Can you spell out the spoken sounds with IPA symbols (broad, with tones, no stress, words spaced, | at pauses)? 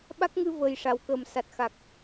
ɓa˦˥k̚ŋɨ˧vəː˨˩j ʂa˨˩wkəː˨˩m sa˨˩t̚xa˨˩k̚